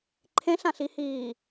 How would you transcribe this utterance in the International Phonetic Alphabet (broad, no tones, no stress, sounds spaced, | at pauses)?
ǃʰ ẽ ɬ ã ɬ i h iː